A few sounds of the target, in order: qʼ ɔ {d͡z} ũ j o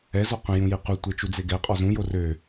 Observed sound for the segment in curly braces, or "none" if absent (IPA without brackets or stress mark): z